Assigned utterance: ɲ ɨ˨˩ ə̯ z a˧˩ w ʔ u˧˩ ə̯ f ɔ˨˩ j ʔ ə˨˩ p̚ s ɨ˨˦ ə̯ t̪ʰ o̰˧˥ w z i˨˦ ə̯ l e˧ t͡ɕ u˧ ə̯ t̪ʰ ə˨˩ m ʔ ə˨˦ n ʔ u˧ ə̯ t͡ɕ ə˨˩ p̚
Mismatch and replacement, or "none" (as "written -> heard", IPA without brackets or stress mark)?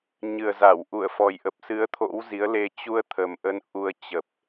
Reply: none